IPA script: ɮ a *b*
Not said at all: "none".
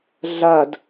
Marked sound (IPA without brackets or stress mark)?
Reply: d